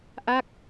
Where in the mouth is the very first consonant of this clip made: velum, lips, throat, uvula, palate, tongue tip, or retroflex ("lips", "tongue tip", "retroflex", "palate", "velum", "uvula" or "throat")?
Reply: throat